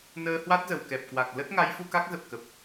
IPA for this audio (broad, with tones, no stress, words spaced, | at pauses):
nəː˧hwa˦˥t̚ zə˧˩wkɛ˨˩p̚kwa˨˩k̚ lə˦˥t̚ŋa˨˦jfu˧ ka˦˥k̚zə˨˩p̚kə˨˩p̚